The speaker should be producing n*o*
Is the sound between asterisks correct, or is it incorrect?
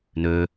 incorrect